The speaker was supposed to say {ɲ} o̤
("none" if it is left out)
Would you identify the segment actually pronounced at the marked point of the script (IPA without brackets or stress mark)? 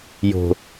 j